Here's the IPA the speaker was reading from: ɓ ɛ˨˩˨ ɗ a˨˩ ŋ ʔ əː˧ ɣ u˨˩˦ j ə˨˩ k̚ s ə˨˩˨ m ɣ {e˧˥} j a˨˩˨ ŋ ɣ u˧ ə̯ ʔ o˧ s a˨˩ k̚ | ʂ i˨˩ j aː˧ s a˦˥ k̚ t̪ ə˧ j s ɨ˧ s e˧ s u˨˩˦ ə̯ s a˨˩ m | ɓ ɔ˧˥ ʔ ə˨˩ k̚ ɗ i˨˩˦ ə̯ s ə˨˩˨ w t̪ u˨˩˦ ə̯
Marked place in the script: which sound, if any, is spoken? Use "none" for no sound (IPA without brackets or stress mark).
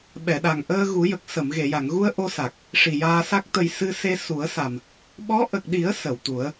e˨˩˨